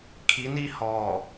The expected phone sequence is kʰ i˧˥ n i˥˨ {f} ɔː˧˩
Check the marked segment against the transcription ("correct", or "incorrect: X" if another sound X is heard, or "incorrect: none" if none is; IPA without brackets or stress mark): incorrect: h